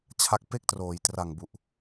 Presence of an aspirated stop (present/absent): present